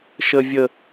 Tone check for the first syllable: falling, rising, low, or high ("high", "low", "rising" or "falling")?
high